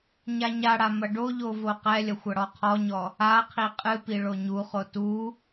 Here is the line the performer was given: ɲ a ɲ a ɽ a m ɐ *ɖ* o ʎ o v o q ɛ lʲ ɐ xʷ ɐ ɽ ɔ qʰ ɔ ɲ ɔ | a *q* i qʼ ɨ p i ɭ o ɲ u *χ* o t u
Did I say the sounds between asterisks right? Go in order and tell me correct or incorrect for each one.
correct, incorrect: qʰ, correct

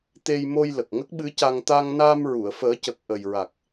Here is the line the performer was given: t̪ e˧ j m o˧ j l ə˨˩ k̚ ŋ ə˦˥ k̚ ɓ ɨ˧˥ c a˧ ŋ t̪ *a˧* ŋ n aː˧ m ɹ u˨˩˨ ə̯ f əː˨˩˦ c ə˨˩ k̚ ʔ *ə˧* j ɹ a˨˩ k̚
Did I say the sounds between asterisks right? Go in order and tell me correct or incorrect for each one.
correct, incorrect: ə˨˩

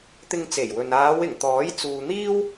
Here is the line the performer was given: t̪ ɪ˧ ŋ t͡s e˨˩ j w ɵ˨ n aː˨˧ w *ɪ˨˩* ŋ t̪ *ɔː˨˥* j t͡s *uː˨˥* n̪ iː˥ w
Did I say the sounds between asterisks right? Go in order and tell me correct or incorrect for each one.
correct, correct, incorrect: uː˨

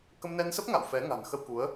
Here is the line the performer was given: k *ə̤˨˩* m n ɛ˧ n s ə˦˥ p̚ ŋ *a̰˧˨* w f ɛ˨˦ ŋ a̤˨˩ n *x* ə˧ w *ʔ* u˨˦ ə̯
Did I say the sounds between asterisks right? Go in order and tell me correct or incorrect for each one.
incorrect: ə˧, correct, correct, incorrect: k

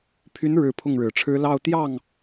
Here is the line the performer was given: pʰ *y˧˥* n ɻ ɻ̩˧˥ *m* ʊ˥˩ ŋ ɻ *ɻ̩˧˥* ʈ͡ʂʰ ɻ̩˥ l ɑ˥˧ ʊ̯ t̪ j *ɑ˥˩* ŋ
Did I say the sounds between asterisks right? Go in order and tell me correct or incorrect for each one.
correct, incorrect: pʰ, incorrect: ɻ̩˨˩, correct

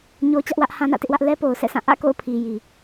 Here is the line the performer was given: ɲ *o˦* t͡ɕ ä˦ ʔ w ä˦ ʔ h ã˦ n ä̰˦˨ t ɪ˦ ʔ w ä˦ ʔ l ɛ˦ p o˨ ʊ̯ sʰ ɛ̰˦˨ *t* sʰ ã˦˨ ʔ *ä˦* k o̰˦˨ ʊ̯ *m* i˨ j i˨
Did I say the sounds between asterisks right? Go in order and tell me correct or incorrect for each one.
correct, incorrect: none, incorrect: ä̰˦˨, incorrect: pʰ

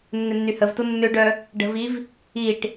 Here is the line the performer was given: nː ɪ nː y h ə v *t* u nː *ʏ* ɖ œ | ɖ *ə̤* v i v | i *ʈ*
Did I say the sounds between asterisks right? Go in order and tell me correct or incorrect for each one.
correct, correct, correct, correct

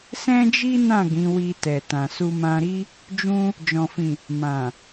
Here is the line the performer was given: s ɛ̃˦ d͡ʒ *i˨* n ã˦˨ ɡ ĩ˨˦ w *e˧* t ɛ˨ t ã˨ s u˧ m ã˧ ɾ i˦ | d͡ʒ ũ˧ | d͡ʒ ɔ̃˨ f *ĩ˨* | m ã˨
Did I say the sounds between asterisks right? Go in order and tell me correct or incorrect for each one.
incorrect: i˦, incorrect: i˧, correct

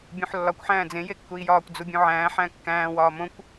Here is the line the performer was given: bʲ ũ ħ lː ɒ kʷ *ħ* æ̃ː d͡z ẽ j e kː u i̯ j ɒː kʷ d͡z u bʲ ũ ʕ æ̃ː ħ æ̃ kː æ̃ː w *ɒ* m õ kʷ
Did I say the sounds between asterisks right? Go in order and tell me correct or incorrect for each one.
correct, incorrect: ɒː

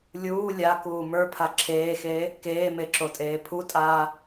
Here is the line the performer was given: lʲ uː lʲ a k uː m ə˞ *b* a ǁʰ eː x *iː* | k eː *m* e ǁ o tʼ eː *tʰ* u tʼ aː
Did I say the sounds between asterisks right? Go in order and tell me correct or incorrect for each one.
incorrect: pʰ, incorrect: eː, correct, incorrect: pʰ

